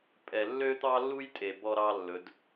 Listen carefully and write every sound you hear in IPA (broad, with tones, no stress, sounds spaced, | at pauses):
pʼ ɛ˨ lː ø˦ t̪ ɑ˦ lː u˦ j tʼ e˨ b ɔ˦ ɾ ɑ˦ lː ɵ˨˦ d